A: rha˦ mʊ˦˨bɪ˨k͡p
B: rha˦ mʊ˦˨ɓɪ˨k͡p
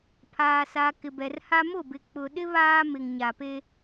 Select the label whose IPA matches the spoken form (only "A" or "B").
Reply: A